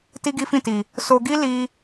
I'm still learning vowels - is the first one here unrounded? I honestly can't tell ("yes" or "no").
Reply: yes